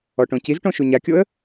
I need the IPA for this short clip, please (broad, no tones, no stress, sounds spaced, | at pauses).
ɔ ʈ õ c i z ʈ õ ʃ u ɲ a kʲ o ə̯